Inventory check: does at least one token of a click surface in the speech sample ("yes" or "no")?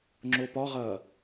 yes